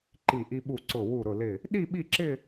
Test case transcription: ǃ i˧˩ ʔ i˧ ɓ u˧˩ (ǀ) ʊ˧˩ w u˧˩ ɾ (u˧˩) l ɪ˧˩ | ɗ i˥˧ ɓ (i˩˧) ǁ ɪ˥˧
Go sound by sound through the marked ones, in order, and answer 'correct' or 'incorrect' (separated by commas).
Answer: correct, incorrect, incorrect